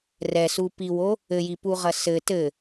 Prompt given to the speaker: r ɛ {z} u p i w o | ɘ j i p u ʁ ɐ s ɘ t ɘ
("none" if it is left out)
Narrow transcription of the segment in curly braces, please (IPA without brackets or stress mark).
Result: s